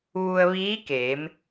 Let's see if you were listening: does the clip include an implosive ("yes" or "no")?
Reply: no